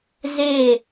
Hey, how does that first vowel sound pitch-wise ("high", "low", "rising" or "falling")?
falling